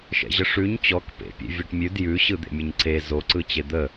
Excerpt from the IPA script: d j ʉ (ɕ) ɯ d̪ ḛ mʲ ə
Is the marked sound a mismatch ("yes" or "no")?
no